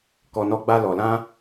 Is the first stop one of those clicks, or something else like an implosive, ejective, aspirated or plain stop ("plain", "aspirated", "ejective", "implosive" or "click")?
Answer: plain